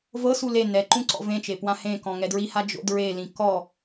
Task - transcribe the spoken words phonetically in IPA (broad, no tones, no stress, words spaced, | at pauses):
vɤsu le nɛǃũ ǀɔ̰vẽt͡ʃe pwãhẽkɔ̃ ŋɛdɹiha d͡ʒo̰dɹelĩ kɔ